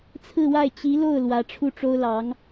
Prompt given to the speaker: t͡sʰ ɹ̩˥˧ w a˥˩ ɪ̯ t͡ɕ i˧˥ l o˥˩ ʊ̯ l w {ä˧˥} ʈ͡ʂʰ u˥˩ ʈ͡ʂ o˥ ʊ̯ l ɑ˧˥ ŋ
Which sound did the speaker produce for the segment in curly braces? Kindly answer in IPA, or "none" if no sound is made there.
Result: ä˧˥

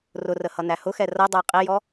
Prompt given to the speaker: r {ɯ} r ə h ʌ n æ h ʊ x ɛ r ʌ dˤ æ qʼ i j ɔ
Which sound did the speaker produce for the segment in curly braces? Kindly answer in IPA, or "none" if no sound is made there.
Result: ʊ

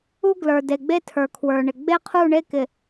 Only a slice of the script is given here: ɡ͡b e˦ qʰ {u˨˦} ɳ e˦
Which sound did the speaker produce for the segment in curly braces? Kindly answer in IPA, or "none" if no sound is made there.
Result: u˦˨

